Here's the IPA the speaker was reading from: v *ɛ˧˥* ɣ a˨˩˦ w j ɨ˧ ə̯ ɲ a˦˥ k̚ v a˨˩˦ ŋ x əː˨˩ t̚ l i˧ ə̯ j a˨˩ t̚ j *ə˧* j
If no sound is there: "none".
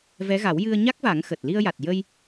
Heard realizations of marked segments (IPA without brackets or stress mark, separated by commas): ɛ˧˥, ə˧